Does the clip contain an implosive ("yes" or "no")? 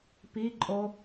no